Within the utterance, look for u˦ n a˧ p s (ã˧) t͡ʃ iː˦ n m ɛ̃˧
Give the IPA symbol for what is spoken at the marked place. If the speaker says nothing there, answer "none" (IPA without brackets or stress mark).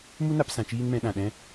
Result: ã˧